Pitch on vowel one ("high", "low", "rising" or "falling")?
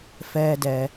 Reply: low